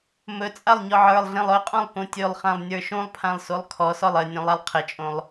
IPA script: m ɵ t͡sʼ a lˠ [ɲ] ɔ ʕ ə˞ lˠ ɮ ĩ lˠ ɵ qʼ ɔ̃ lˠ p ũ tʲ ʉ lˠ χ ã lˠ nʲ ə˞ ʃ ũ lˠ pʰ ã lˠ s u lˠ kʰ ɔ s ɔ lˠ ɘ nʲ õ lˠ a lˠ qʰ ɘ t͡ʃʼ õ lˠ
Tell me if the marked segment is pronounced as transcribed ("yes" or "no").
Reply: yes